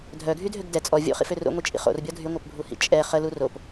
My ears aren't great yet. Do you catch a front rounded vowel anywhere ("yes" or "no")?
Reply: yes